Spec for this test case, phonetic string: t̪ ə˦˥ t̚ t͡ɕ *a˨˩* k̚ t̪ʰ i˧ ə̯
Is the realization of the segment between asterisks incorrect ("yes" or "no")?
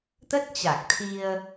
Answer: no